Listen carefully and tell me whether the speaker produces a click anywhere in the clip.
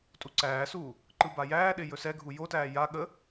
yes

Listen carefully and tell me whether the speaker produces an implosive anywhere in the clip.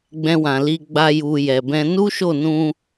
no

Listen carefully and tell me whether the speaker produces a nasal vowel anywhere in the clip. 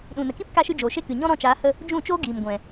yes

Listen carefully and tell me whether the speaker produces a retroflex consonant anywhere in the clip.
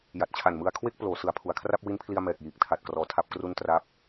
no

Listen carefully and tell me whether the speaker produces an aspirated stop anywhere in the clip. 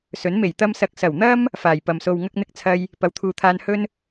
yes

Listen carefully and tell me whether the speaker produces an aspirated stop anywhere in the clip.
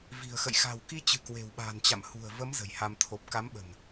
yes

